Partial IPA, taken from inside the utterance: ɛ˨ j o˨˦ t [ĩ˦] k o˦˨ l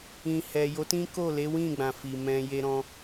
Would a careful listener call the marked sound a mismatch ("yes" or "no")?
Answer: no